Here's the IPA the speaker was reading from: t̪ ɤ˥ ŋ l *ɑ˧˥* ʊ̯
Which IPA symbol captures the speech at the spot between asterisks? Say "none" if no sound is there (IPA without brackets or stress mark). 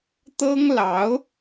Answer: ɑ˧˥